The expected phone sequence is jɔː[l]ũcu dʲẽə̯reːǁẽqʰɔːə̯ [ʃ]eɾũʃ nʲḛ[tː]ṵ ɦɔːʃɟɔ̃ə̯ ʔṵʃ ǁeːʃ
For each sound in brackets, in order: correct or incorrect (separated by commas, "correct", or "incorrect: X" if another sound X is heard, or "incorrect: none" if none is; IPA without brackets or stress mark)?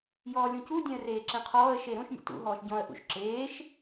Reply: incorrect: lʲ, correct, incorrect: t